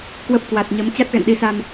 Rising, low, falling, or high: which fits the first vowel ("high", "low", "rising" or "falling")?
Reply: low